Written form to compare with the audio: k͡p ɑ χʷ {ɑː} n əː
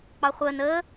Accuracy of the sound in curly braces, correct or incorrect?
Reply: incorrect